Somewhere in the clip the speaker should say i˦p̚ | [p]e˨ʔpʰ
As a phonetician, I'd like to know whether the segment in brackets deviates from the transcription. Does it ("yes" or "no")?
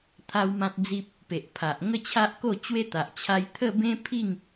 no